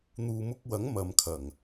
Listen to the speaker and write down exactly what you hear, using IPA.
n̪ uː˨ m ʊ˧ k̚ w ɐ˨˥ ŋ m ɐ˨ m kʰ ɐ˨˩ ŋ

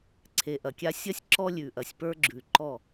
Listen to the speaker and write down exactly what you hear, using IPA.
ǀʰ e˨ ʔ ɐ˨ kʲ a˦ sʲ ɐ˦ sʲ ǁ ɔ˦ lʲ ʉ˨ ʔ ɐ˨ sʲ p ə˞˦ ɡ͡ǁ ʉ˨ ǃ ɔ˦˨

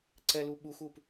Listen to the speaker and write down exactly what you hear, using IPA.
ǀ ɛ l u ɓ u x u p

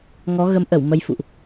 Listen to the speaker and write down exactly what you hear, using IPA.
ŋ ɔ˨˦ ɣ ə˨˦ m ʔ ə˧˩ w m ə˧ j f ṵ˧˨ ʔ

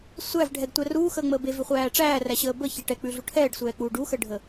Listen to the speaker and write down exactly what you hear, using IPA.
sʷ æ v ɖʱ ɛ ɡ tʷ æ r uː x əː ŋ͡m əː b e v ʉ χʷ æː ʈ͡ʂ æː r æ ɕ əː b ə ç e ʈ ɛ k͡p ʉ ɮ u ʈʰ ɛː ɖ sʷ ɛː k͡p uː ɖ u x ə ɖʱ ə

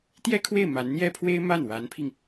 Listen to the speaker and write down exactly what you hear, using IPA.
t̪ j ɛ˥ kʰ w e˥˩ ɪ̯ m a˧˥ n n̪ j ɛ˥ pʰ w e˥ ɪ̯ m a˥˩ n w a˧˥ n pʰ i˧ ŋ

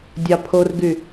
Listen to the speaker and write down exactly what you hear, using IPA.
dʲ ɑ pʰ o r ɡ y

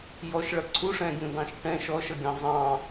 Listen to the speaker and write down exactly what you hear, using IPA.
j ɔ ʃ ɭ ʌ ǀʰ u ʂ ɛ̃ ɡʲ ũ d ɑ̃ ʃ ʈ ɛ̃ ʃ ɔ ʃ ʌ ɡʲ ɑ̃ zˤ ɑ̃

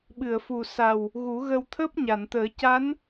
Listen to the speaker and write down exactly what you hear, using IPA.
ɓ ɨ˨˩˨ ə̯ f u˨˩ s a˨˩ w | ɣ u˨˩˦ ɣ ə˧ w t̪ʰ əː˦˥ p̚ ɲ a˨˩˨ n t̪ əː˨˩˦ c a˧˥ n

